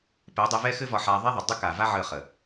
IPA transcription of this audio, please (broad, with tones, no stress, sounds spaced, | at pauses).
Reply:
p ɛ˨˦ dˤ ɛ˧ v ɛ˦ x ɘ˦ v ɒ˧ ħ a˧ ðˤ ɛ˦ ðˤ ʏ˨ dˤ ʏ˦ k a˨ v a˦ ʕ ə˦˨ χ ə˨